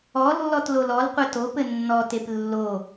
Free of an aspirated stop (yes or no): yes